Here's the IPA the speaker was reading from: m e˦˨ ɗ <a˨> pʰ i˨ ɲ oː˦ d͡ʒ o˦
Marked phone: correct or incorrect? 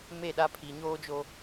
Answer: incorrect